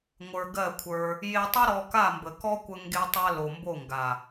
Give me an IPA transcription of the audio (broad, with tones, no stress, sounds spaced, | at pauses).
ŋʷ ə˞˧ ɡ ɜ˦˨ kʷʰ ə˞˧ | j e˧ tˤ ə˦ ɾ ɔ˧ k a˦˨ m b ə˨ k ɔ˦ kʷ ə˧ ŋ ɡ e˧ tˤ a˧ l o˨ m b o˦˨ ŋ ɡ a˨